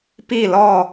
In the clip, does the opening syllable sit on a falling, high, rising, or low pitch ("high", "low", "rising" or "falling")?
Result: falling